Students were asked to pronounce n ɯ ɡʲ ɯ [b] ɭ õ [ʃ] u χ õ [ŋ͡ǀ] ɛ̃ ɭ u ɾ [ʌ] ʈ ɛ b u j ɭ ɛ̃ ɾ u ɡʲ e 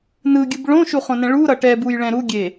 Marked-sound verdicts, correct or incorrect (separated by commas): correct, correct, incorrect, correct